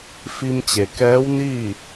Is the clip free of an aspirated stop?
yes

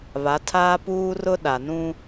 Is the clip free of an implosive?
no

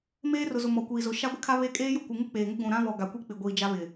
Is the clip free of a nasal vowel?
no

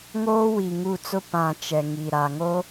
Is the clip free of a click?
yes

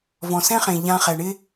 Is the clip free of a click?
yes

